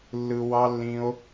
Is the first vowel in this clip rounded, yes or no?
no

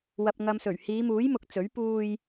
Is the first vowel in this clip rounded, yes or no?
no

